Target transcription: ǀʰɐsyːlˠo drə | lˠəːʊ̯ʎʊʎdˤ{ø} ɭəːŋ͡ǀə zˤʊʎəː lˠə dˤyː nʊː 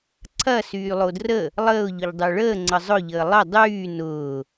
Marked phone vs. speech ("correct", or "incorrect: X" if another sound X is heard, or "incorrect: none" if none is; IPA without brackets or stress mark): correct